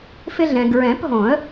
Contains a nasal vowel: yes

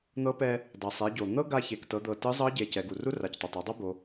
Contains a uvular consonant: no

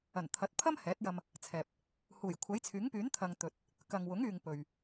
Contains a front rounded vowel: yes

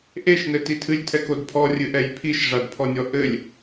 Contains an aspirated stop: yes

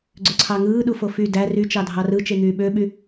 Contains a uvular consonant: no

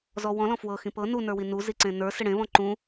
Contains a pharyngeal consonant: no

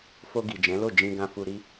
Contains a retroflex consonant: no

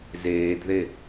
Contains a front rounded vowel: no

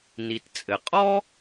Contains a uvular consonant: yes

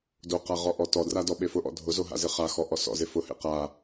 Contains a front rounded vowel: no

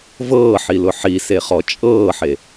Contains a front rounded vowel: no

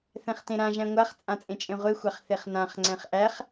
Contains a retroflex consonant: no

